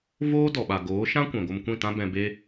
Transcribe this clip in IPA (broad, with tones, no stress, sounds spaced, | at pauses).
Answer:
v oː˦ d ɔ˨ ɓ a˨ ɡ oː˨˦ ʃ ã˦ kʷ ɛ̃˨ ɡʷ ə˧ m kʷ ĩ˦˨ t ã˦ b ɛ̃˧ b e˦